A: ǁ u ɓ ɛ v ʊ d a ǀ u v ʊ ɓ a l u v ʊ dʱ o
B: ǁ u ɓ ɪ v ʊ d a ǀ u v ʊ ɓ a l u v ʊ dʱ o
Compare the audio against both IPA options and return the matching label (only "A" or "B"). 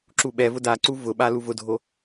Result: A